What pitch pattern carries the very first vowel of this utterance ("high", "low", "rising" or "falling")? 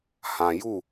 low